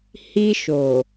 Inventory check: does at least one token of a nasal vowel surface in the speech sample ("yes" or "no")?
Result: no